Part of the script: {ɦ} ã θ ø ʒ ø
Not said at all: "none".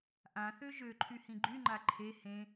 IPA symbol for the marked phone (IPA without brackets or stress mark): ʔ